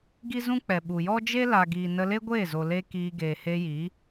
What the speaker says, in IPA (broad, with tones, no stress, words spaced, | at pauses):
ɡi˦zũ˦k͡pɛ˨ ɓu˨jɔ˦d͡ʒe˦ la˨ɡiː˨ nə˧le˦ɡʷeː˦˨zo˨ le˦kiː˧ ɡeː˨he˧ji˨˦